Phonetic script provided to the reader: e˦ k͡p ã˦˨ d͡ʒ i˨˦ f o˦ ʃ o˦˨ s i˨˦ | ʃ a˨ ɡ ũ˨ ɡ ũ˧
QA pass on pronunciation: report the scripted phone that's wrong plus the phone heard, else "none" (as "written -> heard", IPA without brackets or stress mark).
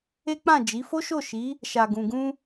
s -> ʃ